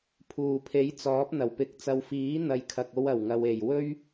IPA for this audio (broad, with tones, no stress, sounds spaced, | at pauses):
pʰ uː˨˩ pʰ e˨˥ j t͡s ɔː˨˥ p̚ n̪ ɐ˨˩ w p ɪ˧ k̚ t͡s ɐ˨ w f iː˨˥ n̪ ɐ˨ j kʰ ɐ˨ k̚ o˧ w ɐ˨˩ w ŋ ɐ˨ w e˨˩ j w ɵ˥ ɥ